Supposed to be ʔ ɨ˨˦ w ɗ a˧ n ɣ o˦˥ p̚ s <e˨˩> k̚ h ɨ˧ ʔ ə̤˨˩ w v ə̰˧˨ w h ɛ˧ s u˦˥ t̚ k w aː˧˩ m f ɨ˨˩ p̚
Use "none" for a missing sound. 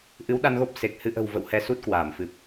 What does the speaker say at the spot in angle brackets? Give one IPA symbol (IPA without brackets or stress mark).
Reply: e˨˩